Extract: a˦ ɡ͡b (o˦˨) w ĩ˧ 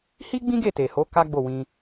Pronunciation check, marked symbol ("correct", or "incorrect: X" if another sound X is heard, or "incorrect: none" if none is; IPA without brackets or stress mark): correct